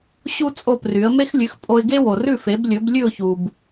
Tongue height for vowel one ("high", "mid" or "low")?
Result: high